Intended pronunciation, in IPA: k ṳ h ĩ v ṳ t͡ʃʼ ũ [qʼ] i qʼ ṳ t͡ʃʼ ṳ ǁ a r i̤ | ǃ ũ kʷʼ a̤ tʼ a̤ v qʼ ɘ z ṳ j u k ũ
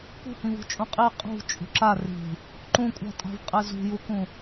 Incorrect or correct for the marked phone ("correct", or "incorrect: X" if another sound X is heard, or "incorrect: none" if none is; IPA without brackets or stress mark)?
correct